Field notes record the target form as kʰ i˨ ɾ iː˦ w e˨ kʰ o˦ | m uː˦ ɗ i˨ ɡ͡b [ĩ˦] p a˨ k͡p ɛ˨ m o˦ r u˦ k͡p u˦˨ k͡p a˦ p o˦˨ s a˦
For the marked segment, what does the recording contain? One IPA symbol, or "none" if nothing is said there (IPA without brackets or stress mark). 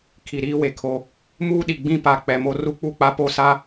ĩ˦